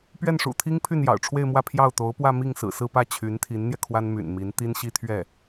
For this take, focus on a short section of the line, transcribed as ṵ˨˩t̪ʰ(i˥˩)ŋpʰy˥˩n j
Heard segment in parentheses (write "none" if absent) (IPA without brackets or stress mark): i˥